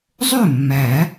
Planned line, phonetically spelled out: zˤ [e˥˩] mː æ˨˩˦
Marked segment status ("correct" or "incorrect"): incorrect